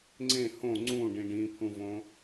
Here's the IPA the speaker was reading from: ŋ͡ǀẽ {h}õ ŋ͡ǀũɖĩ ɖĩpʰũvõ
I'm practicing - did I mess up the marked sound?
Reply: no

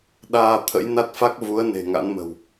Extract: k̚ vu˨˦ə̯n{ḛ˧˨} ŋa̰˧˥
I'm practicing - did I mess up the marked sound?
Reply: yes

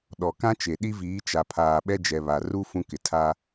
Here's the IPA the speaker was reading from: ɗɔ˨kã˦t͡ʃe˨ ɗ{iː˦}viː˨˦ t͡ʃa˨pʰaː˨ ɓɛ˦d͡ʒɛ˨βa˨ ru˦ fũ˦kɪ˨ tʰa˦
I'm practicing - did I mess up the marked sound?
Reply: yes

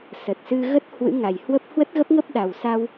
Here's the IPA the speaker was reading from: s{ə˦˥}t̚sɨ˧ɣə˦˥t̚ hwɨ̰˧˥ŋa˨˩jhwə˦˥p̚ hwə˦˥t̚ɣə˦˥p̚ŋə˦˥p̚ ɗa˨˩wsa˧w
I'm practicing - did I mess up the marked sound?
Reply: yes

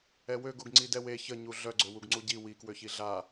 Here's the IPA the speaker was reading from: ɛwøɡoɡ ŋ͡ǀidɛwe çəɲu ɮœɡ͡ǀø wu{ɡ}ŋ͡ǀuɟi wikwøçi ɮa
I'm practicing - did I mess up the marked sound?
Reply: no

